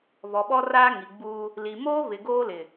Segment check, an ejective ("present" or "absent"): absent